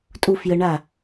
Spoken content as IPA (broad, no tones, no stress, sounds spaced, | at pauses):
tʼ u f j ə ɳ a